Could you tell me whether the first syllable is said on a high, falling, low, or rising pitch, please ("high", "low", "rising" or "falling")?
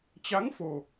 rising